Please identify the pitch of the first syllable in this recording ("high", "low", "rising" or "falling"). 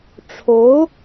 rising